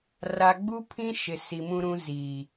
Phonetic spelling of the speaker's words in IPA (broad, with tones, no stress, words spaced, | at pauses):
ra˨ɡ͡bu˦pʰĩ˦ ʃɪ˨si˨mũ˦ɾũ˦ ziː˨